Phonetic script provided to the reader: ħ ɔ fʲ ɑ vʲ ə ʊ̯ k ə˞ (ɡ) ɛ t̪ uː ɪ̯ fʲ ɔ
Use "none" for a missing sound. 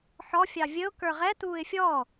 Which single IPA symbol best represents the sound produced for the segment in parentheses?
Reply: ʁ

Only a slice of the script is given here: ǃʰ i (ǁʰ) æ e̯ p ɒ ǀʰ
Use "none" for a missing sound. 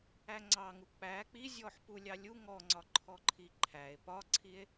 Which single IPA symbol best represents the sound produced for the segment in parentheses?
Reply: ǃʰ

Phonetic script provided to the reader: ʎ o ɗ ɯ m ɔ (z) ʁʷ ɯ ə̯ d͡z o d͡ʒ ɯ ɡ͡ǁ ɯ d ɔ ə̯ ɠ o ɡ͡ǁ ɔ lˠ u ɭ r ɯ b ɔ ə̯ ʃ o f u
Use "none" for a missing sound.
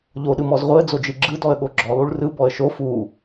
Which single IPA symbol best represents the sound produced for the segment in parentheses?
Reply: z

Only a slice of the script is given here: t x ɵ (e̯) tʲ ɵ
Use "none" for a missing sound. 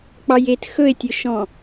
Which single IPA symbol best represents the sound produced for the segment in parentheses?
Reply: e̯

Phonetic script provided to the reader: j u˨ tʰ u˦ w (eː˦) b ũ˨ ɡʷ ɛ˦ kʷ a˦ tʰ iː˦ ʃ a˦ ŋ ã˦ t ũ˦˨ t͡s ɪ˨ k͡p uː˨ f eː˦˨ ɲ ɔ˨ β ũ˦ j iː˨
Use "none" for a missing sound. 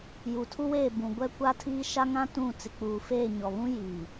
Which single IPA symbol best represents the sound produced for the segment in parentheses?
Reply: eː˦˨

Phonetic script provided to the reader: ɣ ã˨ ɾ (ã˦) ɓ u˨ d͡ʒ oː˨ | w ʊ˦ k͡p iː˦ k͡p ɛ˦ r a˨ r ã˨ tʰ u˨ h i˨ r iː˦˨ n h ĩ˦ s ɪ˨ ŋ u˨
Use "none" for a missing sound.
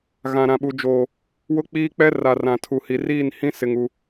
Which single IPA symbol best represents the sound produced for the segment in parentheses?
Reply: ã˨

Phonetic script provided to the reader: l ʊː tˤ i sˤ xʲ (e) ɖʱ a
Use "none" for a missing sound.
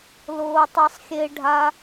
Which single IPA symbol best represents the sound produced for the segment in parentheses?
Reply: e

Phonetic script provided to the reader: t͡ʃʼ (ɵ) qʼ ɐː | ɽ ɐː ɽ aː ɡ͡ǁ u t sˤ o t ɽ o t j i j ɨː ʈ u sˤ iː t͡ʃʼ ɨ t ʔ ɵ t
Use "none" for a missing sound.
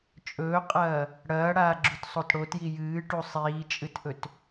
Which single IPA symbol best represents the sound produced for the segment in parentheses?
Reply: ɵː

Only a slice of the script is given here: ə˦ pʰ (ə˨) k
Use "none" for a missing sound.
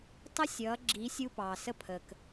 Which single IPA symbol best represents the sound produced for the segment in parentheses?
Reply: ə˨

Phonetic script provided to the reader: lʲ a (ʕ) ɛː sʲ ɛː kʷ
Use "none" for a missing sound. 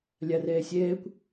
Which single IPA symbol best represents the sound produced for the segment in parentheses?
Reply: r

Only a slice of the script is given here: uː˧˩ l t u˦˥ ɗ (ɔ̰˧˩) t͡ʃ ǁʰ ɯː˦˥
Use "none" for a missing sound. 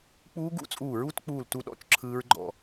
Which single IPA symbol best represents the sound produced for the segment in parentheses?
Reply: ɔ̰˧˩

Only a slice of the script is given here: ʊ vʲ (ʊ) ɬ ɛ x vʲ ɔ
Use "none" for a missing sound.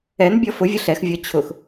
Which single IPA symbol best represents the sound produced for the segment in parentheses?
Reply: ʊ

